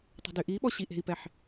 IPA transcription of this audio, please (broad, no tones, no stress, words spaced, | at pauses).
tˤṳdyʔiɓɔ ɕiʔe̤i̯pɛħ